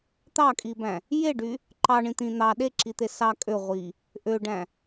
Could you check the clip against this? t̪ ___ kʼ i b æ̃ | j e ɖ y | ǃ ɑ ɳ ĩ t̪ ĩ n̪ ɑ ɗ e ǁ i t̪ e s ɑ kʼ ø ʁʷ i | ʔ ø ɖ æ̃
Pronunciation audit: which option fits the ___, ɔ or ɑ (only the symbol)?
ɑ